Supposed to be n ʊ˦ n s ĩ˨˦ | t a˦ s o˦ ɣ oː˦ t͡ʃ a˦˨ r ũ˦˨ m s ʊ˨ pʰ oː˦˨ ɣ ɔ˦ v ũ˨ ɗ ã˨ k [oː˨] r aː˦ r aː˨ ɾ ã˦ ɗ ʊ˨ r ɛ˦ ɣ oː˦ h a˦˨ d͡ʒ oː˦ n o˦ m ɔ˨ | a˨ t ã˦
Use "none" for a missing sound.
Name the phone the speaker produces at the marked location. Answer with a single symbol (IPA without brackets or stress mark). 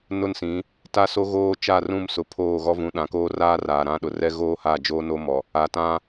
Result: oː˦